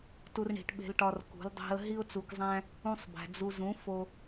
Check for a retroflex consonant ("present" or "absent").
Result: present